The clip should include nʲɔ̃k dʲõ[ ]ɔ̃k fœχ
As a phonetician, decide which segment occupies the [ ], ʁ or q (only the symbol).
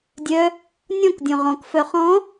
ʁ